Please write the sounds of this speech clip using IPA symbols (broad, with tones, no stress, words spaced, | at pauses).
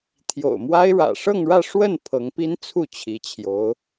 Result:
t̪ʰjo̰˨˩ʊ̯mwa˥ɪ̯ ɻä̰˨˩ʂɤ˥˧ŋɻä˥˧ ʂwə˥˩n pʰɤ˧˥ŋpi˥nt͡sʰu˥˩ t͡ɕʰi˧˥t͡ɕʰjo˧˥ʊ̯